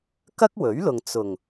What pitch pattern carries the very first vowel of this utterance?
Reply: high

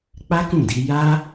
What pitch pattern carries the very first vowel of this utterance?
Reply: high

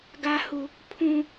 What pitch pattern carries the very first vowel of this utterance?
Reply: high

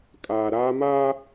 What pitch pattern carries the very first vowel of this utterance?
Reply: low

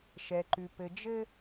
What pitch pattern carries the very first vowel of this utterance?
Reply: low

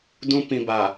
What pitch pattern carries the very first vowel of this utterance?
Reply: high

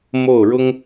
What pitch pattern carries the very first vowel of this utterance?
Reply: falling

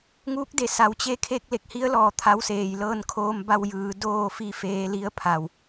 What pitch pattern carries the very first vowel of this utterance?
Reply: rising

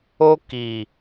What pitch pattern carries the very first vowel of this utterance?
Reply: high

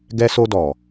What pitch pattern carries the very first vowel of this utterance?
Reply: high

